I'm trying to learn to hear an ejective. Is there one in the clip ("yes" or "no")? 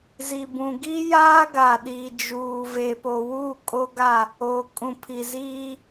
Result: yes